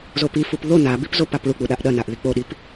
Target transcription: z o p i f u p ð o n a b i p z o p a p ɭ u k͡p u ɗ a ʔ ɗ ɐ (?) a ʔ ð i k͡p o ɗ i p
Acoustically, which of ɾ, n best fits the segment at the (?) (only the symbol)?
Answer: n